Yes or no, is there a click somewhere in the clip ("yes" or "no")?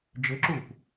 yes